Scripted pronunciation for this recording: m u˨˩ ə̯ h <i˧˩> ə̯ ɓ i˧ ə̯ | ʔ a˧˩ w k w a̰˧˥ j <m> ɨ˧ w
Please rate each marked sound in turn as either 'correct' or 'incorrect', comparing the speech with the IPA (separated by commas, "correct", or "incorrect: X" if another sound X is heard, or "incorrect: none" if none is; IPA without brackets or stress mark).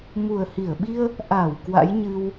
correct, incorrect: ɲ